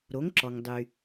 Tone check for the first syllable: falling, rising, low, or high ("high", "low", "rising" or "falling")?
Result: rising